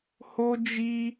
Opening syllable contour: high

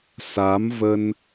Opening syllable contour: rising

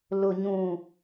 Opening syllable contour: low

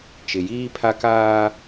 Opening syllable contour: low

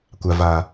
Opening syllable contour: low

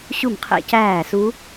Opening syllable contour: falling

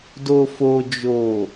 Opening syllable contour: low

